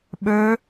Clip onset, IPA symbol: ɓ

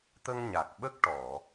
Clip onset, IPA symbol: t̪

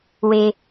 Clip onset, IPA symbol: w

